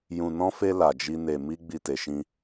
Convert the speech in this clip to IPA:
jũ˧nɔ̃˦fe˦ la˧d͡ʒi˦ ne˧ mi˦ ɡ͡bi˧te˨ʃĩ˧

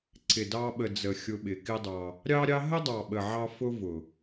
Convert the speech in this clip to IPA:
ǀɪ˨dɑ˧ɓə˨d͡zə˨ xʲʊ˧ɓɪ˨kɪ˦dˤɑ˧ | ɾʲɑ˦ɾʲɑ˦ ɦə˦dˤɑ˨ɓə˨ ʕɑ˦ fʊ˦vʊ˨

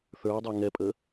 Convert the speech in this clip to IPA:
θə˞wdˤə˞ ŋɛpʼə

